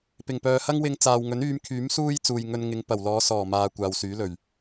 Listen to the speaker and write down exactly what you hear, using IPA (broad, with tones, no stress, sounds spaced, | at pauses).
p ɪ˨˩ ŋ p œː˨ h ɐ˥ ŋ w ɪ˧ ŋ t͡s aː˨ w ŋ ɵ˨˥ n yː˨˧ m kʰ yː˨˥ m s uː˥ j t͡s uː˨ j ŋ ɵ˧ n ŋ ɪ˨˧ ŋ p ɐ˨˩ w l ɔː˨˧ s ɔː˨˩ m aː˨ kʷ aː˨ w s yː˨˥ l ɵ˨˩ ɥ